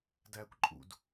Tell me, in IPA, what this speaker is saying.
d æː kʷ ǃʼ ṵ d

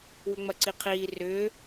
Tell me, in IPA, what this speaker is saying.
w ʏ ŋ͡m ɐ ǀ i qʰ iː r ʏː

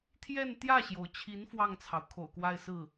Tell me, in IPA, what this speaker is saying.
t̪ʰ j ɛ˥˧ n t̪ j ä˥˩ ɕ j o˩ ʊ̯ t͡ɕʰ i˧˥ n f w ɑ˥˩ ŋ t͡sʰ ɑ˩ ʊ̯ kʰ o̰˨˩ ʊ̯ k w a˥˧ ɪ̯ s ɹ̩˥˩

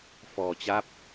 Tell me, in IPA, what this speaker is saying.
f ɔː˧ t͡ɕ a˦˥ p̚

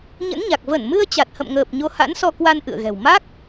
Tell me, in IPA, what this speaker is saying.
ɲ ə̰˧˥ n ɲ a˨˩ k̚ v ə˧˩ n m ɨ˧ ə̯ t͡ɕ a˨˩ t̚ h ə̰˧˨ m ŋ əː˨˩ p̚ ɲ o˧ h a̰˧˥ n s ɔ˧ k w a˧ n ʔ ɨ̰˧˨ ə̯ ɣ ɛ̤˨˩ w m a˦˥ k̚

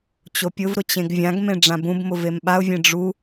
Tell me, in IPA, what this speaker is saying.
t͡ɕ o pʲ ʊ v ɾ ʊ t͡ɕ ẽ ɡ vʲ ã ɡ m ẽ ɖ͡ʐ ã b ũ b m ʊ v e m ɓ a ʊ̯ vʲ ẽ ɖ͡ʐ u

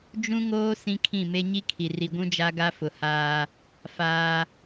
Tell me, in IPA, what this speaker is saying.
d͡ʒ ũ˦ ŋ oː˦ s ĩ˦ kʰ ĩ˦˨ m e˦ ɲ i˦ kʰ i˨ r i˨ ɡʷ ũ˦ d͡ʒ a˦ ɡ a˦ f ʊ˨ h aː˦ | f aː˦

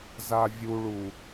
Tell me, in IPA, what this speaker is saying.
z a vʲ u ɭ u

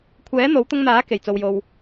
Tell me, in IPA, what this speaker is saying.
kʷʰ ɛː˨˥ n̪ o˨˥ w t̪ ʊ˧ ŋ n̪ aː˨˥ k e˨˩ j t͡s o˨ w j o˨ w

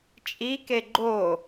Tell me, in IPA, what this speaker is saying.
t͡ʃʼ i k e ɡ͡ǃ o

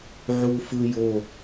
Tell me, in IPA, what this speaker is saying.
ʕ u f ɯ j o

